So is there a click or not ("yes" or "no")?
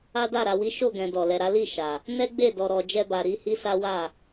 no